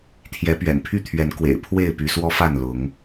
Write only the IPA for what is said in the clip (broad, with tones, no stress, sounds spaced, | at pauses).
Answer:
t̪ʰ j ɛ˨˦ p ɥ ɛ̰˨˩ n pʰ y˥˨ t̪ʰ ɥ ɛ˨˦ n k w ḛ˨˩ ɪ̯ pʰ w e˥˨ ɪ̯ p y˨˦ s w ɔ˦ f a˥˨ n l ʊ˨˦ ŋ